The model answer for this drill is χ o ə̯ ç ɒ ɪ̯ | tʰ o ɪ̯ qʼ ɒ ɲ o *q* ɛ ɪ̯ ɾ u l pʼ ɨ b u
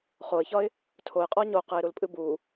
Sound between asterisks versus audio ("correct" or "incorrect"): correct